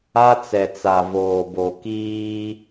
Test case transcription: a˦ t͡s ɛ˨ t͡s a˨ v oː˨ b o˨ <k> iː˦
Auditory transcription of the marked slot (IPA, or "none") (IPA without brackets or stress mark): k